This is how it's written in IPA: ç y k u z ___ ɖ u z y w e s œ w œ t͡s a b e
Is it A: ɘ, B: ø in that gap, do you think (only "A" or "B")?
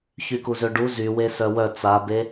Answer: B